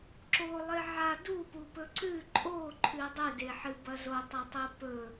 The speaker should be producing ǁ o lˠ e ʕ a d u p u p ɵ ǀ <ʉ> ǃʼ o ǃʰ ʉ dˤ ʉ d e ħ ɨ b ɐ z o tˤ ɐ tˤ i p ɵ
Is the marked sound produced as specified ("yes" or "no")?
yes